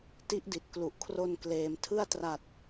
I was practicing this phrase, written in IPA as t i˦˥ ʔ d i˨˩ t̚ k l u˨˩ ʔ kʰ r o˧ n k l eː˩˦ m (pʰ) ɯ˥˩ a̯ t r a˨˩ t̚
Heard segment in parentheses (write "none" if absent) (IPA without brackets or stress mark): tʰ